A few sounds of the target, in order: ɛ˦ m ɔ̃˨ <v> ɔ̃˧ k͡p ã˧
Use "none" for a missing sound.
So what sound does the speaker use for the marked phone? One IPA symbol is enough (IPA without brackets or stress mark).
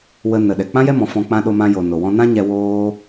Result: f